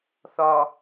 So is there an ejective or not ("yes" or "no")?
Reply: no